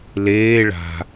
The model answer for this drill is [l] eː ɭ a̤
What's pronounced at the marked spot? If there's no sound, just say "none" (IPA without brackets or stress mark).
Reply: l